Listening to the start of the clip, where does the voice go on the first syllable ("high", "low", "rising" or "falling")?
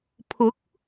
rising